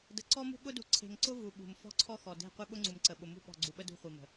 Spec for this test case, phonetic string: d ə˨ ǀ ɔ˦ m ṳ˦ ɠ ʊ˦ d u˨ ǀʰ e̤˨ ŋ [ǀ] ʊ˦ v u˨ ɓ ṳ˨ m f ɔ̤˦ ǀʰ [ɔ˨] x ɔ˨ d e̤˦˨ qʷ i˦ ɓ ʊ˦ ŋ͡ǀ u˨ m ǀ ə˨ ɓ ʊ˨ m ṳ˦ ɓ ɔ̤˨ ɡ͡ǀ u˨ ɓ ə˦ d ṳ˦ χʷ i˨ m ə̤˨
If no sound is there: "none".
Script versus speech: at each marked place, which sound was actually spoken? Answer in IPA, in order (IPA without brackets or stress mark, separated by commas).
ǀ, ɔ˦